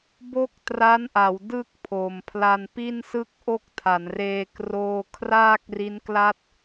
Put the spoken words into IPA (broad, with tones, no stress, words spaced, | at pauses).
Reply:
bo˥˩k̚tra˦˥nʔa˩˦w dɯ˥˩k̚pʰo˨˩m pʰla˧npi˥˩nsɯ˥˩k̚ʔo˥˩k̚ tʰa˩˦nreː˧ kroː˥˩ kʰraː˥˩k̚ri˦˥nkla˥˩t̚